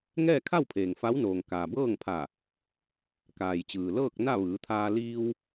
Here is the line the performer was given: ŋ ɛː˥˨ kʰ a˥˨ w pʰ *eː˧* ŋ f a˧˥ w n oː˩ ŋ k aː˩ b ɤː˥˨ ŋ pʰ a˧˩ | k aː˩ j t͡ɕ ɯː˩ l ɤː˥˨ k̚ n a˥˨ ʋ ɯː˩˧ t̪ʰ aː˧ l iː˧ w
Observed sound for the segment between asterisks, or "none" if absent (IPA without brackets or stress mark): eː˩